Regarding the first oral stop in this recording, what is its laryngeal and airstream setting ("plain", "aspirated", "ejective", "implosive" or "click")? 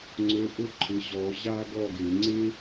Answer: click